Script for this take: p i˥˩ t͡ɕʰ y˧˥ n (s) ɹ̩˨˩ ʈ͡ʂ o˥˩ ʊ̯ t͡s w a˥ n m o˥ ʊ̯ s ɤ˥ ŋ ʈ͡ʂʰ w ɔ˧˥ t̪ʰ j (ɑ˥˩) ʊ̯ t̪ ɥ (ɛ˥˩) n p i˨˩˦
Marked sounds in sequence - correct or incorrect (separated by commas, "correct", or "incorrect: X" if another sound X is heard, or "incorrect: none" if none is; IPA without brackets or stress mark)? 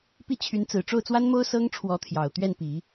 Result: incorrect: t͡s, incorrect: ɑ˨˩, correct